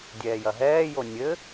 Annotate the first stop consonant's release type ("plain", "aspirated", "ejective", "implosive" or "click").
plain